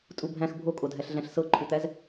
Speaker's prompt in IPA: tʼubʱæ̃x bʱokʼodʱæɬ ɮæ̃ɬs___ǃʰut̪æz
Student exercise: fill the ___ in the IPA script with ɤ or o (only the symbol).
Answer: ɤ